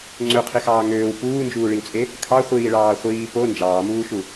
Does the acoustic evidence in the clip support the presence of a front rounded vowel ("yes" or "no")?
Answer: yes